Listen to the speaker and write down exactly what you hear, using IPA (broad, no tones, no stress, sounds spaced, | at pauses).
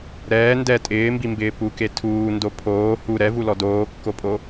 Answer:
ɾ ɛː n d ɛ tʼ ɪː m b i m b ɪː p u k e tʰ uː n d o pʰ oː h u ɾ ɛ v u l ɔ d oː kː o pʼ o